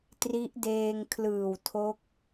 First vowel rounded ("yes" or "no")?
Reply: no